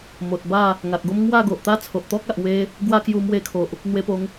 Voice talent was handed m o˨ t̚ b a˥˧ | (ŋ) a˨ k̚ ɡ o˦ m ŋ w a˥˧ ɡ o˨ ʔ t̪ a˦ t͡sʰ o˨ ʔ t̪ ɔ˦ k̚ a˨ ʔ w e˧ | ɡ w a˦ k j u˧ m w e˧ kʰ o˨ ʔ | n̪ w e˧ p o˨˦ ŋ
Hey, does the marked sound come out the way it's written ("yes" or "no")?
yes